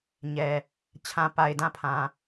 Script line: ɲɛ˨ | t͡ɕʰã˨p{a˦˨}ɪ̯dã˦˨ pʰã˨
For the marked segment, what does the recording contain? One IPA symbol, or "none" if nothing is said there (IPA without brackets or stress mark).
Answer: a˨